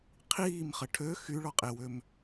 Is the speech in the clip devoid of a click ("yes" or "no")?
yes